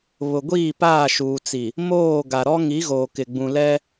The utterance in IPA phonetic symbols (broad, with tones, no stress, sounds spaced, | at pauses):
β ʊ˨ ɡʷ iː˦˨ p aː˦˨ ʃ uː˨ t͡s i˨ | m oː˦˨ ɡ a˨ ɾ ɔ˦ ŋ i˨˦ ɣ oː˨ k ɪ˨ ɡ͡b ũ˨ l ɛ˦